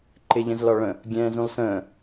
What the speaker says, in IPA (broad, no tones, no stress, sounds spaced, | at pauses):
ǃ ɪ ʎ ə̃ z l ɒ ɭ ə̃ | ɡʲ ɛ̃ː z ũ lˠ s ə̃ː